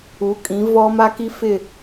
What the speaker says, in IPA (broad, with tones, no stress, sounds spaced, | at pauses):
u˨˦ kʼ ĩ˨˦ v ɔ˦ m a˦ k i˦ f ɪ˦˨